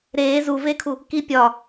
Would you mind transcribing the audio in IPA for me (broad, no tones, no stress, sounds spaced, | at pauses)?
ɾ eː z u v e kʰ u | k i pʲ ɒ